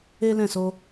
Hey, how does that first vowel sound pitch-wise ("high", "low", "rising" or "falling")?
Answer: high